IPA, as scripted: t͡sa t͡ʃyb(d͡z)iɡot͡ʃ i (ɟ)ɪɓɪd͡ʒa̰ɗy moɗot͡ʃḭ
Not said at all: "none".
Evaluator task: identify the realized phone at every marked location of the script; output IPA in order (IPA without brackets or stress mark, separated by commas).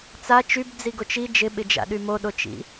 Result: d͡z, d͡ʒ